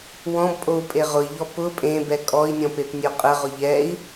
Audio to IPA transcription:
w ɔ̃ b pʼ o u̯ pʼ e ʁ ʊ i̯ ʎ ɔ p ʊ pʼ ẽ b ɛ kʼ ɔ i̯ nʲ ɔ̃ p e p nʲ o qʼ ə ʁ ʊ ʎ ɛ i̯

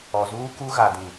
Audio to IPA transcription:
ɔ˨ z uː˦ k u˦ ɣ a˨ d ĩ˨

